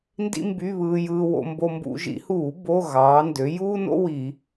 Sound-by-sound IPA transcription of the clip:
ndḭ˥mby˧˥˧βɯː˧jɯː˧ wo̰˧mbo˧ mbṵ˧˩˧ʒḭ˩˧huː˧˩˧ bo˧˥˧ ɣɑː˩˧ndø˩˧ juː˥no̰˥ wi˧˩˧

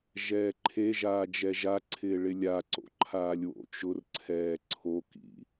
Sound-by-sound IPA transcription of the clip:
ʒɛːǃʰeʒaː d͡ʒɛʒaǀʰɪː ɭɪlʲaǀo̰ ǃʰaːlʲwo̰t͡ʃʊrǀʰɛː ǀʰokḭ

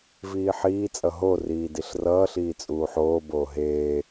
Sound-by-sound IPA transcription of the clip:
viːħiːt͡sʼʌ ɦo riːdiɬrʌːɬiː t͡sʼuːħoːboː ɦeː

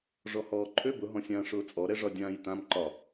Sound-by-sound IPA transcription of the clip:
ʐɔhɔːǃʰø bʊɦɔ̃sʲãː ʂʊːt͡sʼɔɾɛʐɒ dʲãːjtãm ǃɒ

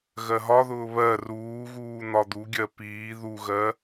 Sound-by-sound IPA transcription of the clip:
ɣɜɦɒðʊː βɜ ruːɣuː n̪ɒd̪uɡʲɜ piː ðuɣɜ

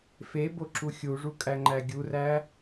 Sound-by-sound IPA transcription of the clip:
feboǁu xʲuʐukʼæŋ͡ǃæ ɡʲuræ

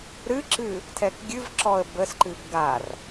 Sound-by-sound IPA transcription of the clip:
ɾɨǁɨ | tʰɛkɡʲɨvǁɔə̯ bəsǃɨb ɡar

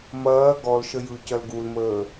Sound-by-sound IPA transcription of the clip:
mɐː ɡɔlʃə jɯcɐl ɡulməː

